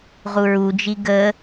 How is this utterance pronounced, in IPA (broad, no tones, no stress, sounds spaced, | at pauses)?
ʁ u ɹ u d͡ʒ i ɡ ə